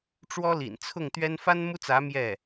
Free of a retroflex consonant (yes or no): no